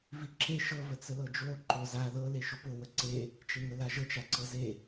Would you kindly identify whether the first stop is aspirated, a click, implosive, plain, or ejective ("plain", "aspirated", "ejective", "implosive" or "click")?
click